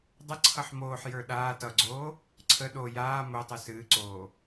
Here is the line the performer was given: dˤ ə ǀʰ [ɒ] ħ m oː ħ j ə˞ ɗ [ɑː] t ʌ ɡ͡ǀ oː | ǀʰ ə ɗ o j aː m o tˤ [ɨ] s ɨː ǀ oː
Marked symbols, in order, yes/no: no, no, yes

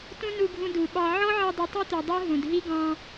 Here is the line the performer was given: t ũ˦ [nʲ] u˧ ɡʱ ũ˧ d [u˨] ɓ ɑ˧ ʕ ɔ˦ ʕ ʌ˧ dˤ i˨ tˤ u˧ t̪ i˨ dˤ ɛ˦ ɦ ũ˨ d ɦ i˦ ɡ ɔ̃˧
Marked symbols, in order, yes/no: no, yes

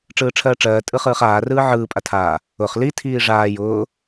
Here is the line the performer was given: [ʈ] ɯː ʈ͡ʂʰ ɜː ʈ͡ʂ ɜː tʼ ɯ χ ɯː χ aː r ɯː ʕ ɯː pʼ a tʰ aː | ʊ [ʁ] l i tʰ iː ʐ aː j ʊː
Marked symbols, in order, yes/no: no, no

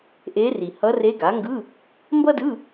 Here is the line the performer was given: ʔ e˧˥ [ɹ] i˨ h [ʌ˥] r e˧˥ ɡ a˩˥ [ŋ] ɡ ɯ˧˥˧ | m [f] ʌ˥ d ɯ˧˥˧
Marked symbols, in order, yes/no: no, no, yes, no

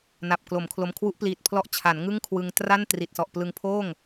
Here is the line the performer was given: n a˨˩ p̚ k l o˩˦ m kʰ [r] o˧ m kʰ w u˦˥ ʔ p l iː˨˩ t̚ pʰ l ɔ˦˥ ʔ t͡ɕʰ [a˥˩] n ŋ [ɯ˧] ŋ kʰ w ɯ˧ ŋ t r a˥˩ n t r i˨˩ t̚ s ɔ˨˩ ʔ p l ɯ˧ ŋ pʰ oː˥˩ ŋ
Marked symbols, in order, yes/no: no, no, no

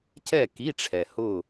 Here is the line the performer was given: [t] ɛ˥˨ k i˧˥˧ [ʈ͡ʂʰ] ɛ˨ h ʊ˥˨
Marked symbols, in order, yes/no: no, yes

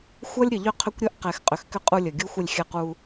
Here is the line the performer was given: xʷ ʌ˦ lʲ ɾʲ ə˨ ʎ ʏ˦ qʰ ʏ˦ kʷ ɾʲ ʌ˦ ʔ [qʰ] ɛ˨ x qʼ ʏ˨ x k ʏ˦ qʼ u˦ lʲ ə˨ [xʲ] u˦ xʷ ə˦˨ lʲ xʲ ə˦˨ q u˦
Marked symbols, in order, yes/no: no, no

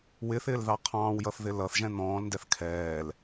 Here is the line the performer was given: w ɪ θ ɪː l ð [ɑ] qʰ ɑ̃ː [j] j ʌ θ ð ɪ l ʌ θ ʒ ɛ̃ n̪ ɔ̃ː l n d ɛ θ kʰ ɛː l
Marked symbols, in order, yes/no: yes, no

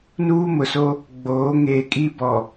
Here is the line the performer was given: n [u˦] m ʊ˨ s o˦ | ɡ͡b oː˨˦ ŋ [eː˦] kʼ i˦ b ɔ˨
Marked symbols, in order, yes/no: no, no

